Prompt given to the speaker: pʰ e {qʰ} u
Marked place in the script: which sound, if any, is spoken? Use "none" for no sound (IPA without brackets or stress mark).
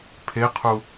qʰ